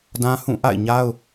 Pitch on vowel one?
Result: high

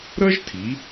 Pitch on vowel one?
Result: high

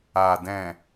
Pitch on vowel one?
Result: low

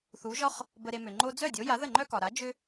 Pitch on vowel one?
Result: rising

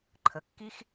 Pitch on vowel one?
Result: rising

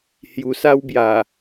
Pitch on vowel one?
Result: low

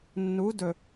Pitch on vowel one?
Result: rising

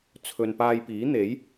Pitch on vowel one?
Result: low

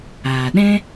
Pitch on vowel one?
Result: low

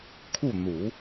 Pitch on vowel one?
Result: falling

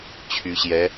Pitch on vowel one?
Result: rising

